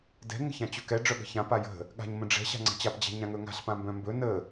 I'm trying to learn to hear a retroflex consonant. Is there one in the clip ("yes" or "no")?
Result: yes